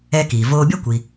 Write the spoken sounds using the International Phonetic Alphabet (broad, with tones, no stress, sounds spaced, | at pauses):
ɛː˧ k iː˩ v oː˧ bʲ a˥ kʷ i˩